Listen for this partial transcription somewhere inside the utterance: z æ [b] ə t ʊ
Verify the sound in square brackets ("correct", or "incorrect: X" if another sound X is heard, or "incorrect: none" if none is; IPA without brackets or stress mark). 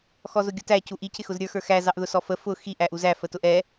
incorrect: f